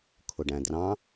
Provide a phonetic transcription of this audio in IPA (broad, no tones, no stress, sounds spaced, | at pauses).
kʰ ʊ ɖ æ̃ d r ɑ̃